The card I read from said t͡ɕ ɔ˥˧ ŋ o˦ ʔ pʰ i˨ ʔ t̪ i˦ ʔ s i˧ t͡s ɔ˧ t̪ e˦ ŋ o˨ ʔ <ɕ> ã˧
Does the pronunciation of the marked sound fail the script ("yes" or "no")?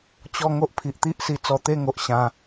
no